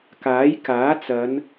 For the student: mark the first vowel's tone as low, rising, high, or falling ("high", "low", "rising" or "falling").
rising